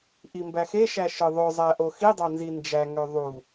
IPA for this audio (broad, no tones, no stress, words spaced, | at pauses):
ʔimbæxeʃæ ʃɯðˤøzˤæ ʔoxidˤɑ nzind͡ʒæŋø ðˤu